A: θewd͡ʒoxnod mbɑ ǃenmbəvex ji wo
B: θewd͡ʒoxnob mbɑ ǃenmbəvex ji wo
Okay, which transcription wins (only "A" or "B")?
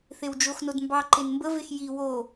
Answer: A